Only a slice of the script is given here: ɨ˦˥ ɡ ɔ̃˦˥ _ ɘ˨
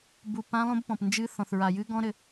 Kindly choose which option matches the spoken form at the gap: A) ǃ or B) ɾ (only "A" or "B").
B